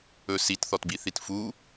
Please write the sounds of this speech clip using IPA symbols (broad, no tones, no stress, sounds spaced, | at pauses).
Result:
ɵ s i t θ ɔ t b i θ i t f u